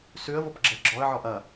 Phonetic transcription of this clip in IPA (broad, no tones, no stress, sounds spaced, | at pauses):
s ʉ ə̯ v o p ɡ͡ǁ ɛ ɡ͡ǁ ɔ ə̯ ʕ ɔ ʔ ɐ